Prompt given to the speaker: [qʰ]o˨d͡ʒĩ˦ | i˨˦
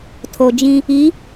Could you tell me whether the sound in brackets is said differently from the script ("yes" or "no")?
yes